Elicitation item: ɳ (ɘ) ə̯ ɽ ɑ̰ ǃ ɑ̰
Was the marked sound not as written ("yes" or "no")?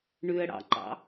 yes